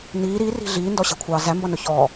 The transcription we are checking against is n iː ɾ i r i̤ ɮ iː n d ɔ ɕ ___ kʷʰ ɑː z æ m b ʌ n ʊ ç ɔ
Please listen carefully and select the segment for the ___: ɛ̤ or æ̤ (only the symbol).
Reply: æ̤